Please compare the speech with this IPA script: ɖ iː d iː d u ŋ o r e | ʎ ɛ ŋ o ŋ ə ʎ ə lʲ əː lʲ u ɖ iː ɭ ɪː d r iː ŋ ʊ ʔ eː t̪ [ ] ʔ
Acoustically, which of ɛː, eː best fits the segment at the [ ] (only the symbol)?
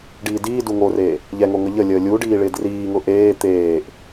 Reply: eː